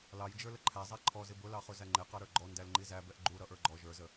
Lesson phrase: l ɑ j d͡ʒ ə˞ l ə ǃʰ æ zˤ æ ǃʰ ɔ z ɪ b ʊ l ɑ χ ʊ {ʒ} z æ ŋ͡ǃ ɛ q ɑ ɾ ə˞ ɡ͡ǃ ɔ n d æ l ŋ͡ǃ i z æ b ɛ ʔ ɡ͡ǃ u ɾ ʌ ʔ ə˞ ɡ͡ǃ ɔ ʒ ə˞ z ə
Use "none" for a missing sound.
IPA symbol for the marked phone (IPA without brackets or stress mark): none